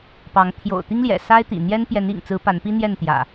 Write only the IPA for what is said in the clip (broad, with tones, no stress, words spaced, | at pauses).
pɑ˨˦ŋ t̪ʰjo̰˨˩ʊ̯t̪i˦ŋljɛ̰˨˩ sa˦ɪ̯t̪ḭ˨˩n̪jɛ˦n pjɛ˨˦nḭ˨˩ŋt͡sɹ̩˨˦ pa˨˦npi˦n̪jɛ˥˨nt̪jä̰˨˩